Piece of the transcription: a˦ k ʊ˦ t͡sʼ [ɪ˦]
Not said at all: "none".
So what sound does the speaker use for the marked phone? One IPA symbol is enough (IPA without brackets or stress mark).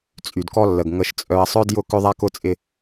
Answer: ɪ˦